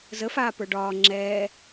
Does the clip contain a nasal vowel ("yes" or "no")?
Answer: no